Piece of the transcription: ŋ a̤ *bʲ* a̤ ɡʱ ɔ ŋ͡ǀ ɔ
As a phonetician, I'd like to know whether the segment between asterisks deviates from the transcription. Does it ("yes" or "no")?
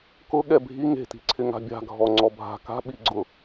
no